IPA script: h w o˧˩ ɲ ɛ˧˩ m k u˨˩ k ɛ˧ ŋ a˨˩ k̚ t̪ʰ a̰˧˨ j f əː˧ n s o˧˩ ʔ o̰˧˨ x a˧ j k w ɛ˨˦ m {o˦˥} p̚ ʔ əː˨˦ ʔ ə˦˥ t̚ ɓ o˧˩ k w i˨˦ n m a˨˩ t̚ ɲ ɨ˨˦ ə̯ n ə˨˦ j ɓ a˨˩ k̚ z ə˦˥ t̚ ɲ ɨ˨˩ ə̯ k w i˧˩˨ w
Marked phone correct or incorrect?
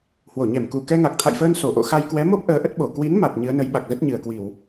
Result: correct